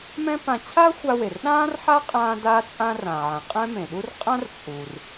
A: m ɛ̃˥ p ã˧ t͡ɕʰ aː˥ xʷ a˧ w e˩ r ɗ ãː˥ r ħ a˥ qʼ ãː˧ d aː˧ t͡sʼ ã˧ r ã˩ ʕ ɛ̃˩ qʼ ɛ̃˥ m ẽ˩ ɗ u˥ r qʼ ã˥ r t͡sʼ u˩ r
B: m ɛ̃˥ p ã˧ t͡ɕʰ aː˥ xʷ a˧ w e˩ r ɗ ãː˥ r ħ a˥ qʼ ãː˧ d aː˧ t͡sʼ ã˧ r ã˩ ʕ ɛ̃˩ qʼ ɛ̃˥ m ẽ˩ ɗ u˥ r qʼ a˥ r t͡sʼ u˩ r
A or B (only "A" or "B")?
A